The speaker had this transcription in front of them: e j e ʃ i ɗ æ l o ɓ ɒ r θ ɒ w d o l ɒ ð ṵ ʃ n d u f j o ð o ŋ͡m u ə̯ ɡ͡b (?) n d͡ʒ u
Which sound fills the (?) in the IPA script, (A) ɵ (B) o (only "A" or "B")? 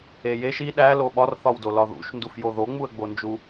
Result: B